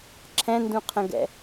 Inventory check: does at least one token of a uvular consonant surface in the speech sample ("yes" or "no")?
yes